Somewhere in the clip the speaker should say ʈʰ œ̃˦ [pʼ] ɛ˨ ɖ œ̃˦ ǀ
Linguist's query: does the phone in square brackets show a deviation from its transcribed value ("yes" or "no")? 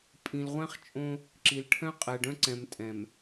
yes